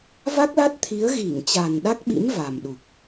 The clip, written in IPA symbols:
v a˦˥ k̚ l a˦˥ t̚ t̪ʰ i˨˦ ə̯ ɣ i˧˩ ŋ t͡ɕ a˨˩ n ɗ a˦˥ k̚ ɓ ḭ˧˥ m v a˨˩ m ɗ u˨˩ k̚

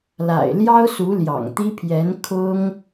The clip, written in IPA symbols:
l a̰˨˩ ɪ̯ l j ɑ˥ ʊ̯ s u˧˥ l j ɑ̰˨˩ ŋ t̪ i˥ pʰ j ɛ˧˥ n kʰ ʊ˥ ŋ

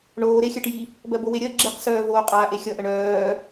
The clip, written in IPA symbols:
ɳ oː ɾ e xʲ ɜ ʈ j i | b ɜ b o w e ɾʲ ɜ ɡ͡ǁ i q s œː v oː qʼ aː ʔ e xʲ ʌ ʔ ə ɳ œː

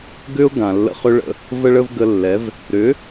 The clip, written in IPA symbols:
ɡ ʏ˦ ʊ̯ ɡ ã˨ lː ə̰˧ χ ʏ˦ ɭ ə̰˧ | v ə˦ ɭ ə˦ v ɡ ə˧ lː ɛ˨˦ v | ɾ ʏ˨˦

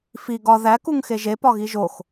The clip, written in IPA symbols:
f i ɡ ɒ ð æ k u ŋ x e ʒ e p ɒ ɣ i ʒ o x

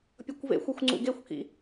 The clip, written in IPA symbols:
pʲ ʌ kʷ v ḛ xʷ ɛ xʷ ŋ͡ǀ ṵ ɡ e xʷ k ḭ

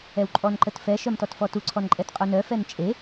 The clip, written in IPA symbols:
ɛ w ǃʼ ɔ n ǃ ə t f ɛ ʃ œ m t ɔ t f ɔ t u ǀʰ ɔ n ǃʼ ɛ t qʼ u n œ f ɛ n t͡ʃʼ e

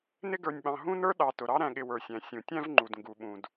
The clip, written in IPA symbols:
n ɪ˥ ɡ ə˞˨ nʲ ɓ ɑ̃˨ ɦ ũ˥ n ə˞˥ ɗ ɑ˨ t ʊ˩ ɾ ɑ˥ ɾ æ̃˨ ɠ ɪ˨ w ə˞˩ sʲ æ̃˩ sʲ ũ˩ tʲ æ̃˥ v ŋ͡ǃ u˩ d ŋ ɡ u˩ ɓ ũ˩ d

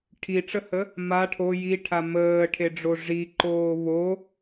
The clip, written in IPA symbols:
ʈʰ i ʈ͡ʂ ə h ə | m a ʈʰ o j i ʈʰ a m əː ʈʰ e ɖ͡ʐ o ʐ i ǃ oː β o

